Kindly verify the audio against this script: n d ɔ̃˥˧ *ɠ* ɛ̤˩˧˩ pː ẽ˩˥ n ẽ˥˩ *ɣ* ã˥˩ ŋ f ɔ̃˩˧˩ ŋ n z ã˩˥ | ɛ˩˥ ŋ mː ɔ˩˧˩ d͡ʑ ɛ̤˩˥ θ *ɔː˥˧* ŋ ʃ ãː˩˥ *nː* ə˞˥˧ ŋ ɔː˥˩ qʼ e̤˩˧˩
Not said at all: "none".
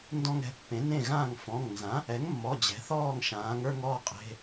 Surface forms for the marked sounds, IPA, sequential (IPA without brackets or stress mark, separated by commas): ŋ, ɣ, ɔː˥˩, ŋ